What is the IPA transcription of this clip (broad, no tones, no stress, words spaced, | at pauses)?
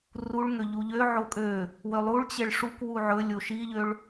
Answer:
ruɭŋø ʎuʎø ʕokʼø | wølˠuɭ t͡ɕeɭʂuk wuʕɵ lʲoʃiʎøɭ